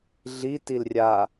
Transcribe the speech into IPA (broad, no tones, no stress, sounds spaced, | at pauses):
ɮ i t i l rʲ a